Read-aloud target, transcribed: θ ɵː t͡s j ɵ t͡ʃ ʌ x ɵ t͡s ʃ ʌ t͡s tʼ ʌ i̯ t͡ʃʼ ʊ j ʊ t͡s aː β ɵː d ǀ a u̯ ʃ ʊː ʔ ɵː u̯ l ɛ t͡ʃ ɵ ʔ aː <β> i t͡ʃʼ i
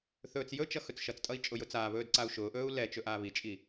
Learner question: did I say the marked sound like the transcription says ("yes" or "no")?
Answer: yes